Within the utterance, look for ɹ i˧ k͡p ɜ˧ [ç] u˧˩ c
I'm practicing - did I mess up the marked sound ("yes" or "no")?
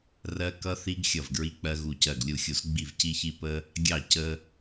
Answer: yes